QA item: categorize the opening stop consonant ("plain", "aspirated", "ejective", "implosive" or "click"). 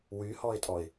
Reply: ejective